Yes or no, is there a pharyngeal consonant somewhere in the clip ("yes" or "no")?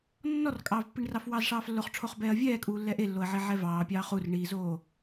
yes